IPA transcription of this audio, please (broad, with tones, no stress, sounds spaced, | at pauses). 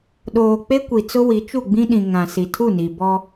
ɗ oː˨ k͡p e˦ kʷ i˨ t͡s ʊ˦ w i˨˦ t͡ʃ u˦˨ ɡ͡b ĩ˦ ɗ ĩ˨ ŋ ã˨ s i˨ tʰ u˦˨ n i˨ b ɔ˦